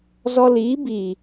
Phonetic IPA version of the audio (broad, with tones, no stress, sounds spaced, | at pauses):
z ɔ˧ l iː˨˦ b iː˨